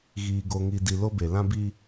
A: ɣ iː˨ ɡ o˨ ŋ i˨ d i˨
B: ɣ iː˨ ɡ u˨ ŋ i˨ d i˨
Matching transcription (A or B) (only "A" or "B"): A